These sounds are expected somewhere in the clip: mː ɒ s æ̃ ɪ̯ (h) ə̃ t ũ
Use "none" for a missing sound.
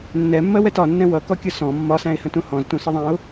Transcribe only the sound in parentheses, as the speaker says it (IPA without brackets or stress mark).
h